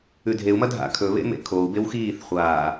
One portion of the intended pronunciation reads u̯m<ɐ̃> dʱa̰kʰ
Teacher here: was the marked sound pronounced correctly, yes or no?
no